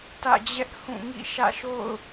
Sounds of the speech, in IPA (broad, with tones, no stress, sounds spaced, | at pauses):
t ä̰˦˨ d͡ʑ ɛ˦ ʔ h ũ˦˨ ŋ ḭ˦˨ ʃ ä̰˦˨ ʃ o̰˦˨ ʊ̯